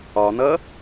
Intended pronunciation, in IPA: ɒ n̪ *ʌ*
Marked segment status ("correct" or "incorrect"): correct